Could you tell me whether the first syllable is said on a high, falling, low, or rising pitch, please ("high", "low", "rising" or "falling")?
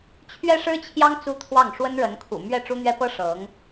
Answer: high